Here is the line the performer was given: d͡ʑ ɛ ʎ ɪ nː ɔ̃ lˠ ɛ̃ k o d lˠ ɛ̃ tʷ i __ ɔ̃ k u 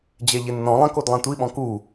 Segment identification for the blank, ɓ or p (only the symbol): ɓ